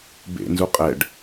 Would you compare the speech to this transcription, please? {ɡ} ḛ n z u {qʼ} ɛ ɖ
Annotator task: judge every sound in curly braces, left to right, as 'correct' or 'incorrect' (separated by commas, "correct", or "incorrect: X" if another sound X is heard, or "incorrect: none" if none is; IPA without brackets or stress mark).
incorrect: b, correct